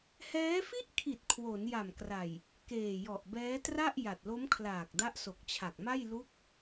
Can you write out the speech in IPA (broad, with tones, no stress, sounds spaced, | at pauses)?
h ɛː˦˥ f i˥˩ ʔ kʰ i˨˩ t̚ kʰ w o˩˦ n j a˨˩ m k r a˨˩ j | k eː˨˩ j ɔ˨˩ ʔ b ɛː˦˥ t r a˥˩ ʔ j a˨˩ t̚ l o˦˥ m kʰ l aː˨˩ k̚ d a˦˥ ʔ s o˨˩ k̚ t͡ɕʰ a˨˩ k̚ m a˥˩ j l u˦˥ k̚